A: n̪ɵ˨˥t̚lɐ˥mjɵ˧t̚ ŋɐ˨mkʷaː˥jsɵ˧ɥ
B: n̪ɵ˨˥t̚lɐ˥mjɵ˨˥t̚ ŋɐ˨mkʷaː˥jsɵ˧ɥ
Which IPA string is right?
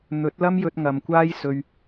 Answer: A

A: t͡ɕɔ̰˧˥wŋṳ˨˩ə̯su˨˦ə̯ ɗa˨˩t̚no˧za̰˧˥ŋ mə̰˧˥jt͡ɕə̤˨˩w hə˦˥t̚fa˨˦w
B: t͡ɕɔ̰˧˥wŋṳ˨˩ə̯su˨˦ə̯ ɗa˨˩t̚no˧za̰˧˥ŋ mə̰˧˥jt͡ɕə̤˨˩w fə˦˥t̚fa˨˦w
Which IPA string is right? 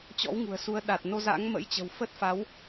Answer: B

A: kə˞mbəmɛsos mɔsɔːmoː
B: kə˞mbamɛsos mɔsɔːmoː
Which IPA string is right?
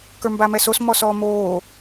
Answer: B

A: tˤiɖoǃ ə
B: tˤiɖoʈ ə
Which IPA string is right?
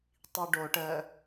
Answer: B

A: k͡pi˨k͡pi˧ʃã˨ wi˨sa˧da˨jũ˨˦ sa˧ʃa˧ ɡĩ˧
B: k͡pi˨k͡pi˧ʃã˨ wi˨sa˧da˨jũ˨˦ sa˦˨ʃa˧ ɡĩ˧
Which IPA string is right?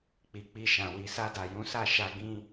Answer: B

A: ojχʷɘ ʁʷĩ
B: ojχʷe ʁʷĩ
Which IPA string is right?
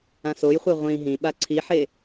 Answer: A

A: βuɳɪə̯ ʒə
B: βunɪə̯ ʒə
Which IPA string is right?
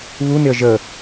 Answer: B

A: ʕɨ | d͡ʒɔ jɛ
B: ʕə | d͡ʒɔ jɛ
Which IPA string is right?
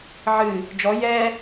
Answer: A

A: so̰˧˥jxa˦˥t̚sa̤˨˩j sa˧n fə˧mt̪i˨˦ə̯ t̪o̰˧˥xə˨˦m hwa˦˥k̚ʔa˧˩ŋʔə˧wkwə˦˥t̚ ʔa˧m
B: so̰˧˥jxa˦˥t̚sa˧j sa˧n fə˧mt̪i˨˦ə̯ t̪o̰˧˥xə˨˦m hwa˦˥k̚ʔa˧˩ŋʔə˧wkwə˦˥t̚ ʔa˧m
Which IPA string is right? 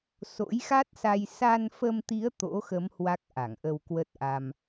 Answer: B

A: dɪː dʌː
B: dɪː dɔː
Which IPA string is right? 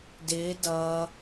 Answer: A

